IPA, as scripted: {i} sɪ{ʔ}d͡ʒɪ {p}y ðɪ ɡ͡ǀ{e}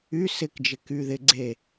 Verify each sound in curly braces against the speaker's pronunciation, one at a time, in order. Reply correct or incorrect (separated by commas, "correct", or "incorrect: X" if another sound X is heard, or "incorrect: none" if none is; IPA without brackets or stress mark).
incorrect: y, incorrect: k, incorrect: k, correct